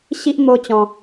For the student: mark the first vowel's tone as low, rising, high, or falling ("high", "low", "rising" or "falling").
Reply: high